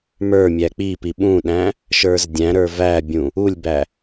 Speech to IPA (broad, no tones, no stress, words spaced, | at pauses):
mə˞ mʲæk͡pipi ɓũɗæ̃ | ʃə˞zdʲæ̃ɾə˞ væbʲũ | ulʲbæ